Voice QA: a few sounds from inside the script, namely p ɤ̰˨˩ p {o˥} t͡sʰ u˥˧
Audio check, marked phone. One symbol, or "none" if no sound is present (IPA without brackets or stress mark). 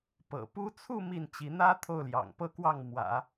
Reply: u˥